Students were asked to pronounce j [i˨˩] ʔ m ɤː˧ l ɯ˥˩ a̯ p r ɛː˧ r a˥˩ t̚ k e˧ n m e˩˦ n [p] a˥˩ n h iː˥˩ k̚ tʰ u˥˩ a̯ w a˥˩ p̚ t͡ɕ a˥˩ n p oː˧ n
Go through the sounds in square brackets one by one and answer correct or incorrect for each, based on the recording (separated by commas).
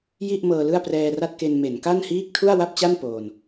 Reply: incorrect, incorrect